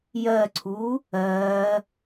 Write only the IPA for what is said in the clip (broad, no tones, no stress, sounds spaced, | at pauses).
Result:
j ɜ ǀʰ uː | ɜː